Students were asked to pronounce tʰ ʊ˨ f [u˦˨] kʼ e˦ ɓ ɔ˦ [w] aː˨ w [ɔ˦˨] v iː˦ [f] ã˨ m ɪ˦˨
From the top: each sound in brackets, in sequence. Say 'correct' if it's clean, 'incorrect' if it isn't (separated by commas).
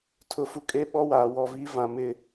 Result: incorrect, correct, correct, incorrect